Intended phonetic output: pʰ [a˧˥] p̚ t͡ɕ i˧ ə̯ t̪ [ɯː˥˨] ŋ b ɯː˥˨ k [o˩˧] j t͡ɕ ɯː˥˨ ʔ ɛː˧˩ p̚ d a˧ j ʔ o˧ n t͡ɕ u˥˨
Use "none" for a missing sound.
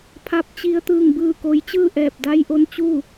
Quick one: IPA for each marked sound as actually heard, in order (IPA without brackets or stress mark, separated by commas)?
a˧˥, ɯː˥˨, o˧˥